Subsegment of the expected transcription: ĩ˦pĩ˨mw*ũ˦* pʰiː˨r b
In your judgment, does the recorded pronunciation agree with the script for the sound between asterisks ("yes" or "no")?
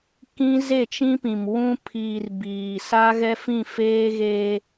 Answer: yes